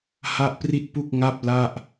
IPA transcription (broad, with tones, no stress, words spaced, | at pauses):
ha˥˩ʔpri˥˩t̚pu˥˩k̚ ŋa˥˩p̚la˥˩ʔ